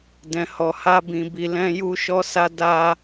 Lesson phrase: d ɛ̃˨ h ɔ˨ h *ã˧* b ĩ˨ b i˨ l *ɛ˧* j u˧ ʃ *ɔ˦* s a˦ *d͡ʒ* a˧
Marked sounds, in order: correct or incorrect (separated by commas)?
incorrect, incorrect, correct, incorrect